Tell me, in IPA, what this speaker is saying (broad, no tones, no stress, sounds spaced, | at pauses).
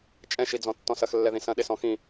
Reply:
t͡ʃʼ ɛ̃ ʃ i d͡z ɔ̃ tː ɔ̃ s ɐ x lː ɛ ð ĩ s ɐ̃ ɗ e s ɔ̃ x ĩ